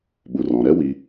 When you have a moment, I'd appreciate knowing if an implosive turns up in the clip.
yes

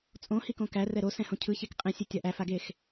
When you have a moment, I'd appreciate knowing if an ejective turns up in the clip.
yes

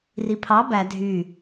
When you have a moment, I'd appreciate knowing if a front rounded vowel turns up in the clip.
yes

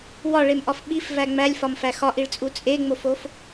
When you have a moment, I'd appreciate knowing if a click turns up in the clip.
no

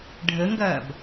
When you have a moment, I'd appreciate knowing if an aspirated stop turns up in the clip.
no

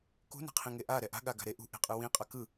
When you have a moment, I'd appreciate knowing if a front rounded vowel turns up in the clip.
no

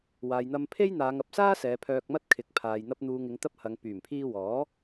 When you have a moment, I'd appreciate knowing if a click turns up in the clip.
no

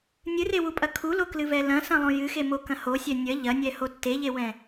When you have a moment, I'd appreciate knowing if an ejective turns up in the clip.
yes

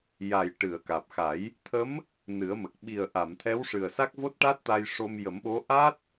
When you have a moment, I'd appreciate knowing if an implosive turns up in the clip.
yes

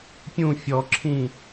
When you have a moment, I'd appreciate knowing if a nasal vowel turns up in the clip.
yes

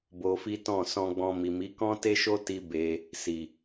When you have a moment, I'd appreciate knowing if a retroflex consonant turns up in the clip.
no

